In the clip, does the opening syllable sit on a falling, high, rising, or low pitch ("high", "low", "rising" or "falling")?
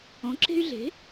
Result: rising